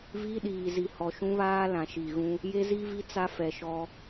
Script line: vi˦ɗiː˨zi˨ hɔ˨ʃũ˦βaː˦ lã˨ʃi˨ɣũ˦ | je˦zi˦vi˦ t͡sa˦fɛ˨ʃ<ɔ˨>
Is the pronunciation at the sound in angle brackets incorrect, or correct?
incorrect